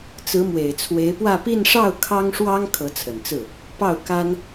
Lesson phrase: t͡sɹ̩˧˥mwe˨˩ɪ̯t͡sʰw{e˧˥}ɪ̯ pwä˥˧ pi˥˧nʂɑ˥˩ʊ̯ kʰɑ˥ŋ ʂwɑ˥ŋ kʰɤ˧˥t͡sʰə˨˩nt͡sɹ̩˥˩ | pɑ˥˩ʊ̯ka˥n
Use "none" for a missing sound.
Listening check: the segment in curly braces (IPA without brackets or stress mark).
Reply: e˧˥